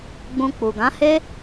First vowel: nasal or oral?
nasal